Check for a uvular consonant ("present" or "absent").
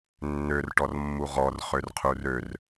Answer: present